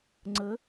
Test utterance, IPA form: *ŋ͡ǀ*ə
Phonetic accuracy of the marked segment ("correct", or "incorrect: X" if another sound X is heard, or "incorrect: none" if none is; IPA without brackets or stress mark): correct